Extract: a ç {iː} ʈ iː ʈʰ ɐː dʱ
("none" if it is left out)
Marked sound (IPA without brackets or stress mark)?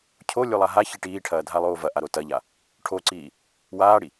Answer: i